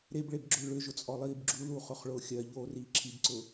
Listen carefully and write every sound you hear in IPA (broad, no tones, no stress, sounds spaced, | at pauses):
ɾ e b ɭ e b ɡ͡ǁ ʊ l ɭ ʏ ʒ ʊ t͡sʼ ɔ lˠ iː b ɡ͡ǁ u l uː χ ʊ χ ɭ ʊː xʲ ɜ ʎ oː r iː ǁʰ i b ǀ ʊː